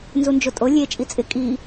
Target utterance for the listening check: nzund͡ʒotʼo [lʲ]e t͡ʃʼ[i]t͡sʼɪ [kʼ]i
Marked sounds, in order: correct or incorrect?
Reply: correct, correct, correct

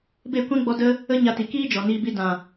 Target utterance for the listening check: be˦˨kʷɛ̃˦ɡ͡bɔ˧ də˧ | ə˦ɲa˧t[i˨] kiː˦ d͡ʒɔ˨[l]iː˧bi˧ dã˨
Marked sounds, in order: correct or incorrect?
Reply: correct, incorrect

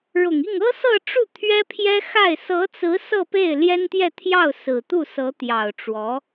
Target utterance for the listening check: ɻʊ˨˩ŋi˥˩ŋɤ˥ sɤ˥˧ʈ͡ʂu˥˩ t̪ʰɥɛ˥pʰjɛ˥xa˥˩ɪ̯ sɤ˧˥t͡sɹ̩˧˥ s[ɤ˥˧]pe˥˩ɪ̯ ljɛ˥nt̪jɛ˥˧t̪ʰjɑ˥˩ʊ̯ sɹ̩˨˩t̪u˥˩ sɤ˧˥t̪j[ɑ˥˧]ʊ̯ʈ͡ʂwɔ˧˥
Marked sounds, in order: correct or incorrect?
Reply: correct, incorrect

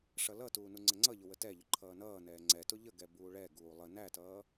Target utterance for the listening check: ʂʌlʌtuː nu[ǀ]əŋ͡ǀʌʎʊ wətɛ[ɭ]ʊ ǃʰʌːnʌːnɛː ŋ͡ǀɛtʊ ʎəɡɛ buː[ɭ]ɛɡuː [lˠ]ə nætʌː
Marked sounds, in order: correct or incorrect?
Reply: incorrect, incorrect, correct, correct

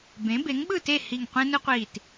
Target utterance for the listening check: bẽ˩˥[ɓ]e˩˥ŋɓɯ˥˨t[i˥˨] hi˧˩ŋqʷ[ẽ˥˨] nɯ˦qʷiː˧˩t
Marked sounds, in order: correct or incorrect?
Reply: incorrect, incorrect, incorrect

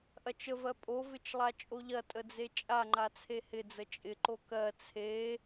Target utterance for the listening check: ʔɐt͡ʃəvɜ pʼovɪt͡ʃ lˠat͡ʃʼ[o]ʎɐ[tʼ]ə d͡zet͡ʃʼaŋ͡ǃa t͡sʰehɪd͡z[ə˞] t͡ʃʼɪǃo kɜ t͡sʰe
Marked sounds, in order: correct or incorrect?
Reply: correct, correct, incorrect

